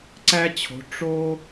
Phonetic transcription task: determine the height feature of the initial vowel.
low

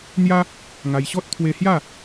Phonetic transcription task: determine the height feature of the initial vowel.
low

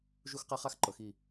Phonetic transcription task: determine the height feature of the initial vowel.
high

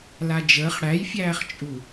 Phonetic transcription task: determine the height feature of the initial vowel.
low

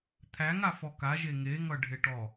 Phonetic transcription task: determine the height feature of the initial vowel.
low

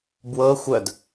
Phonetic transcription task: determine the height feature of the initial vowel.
mid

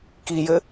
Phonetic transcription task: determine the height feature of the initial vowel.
high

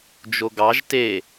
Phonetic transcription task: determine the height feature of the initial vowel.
mid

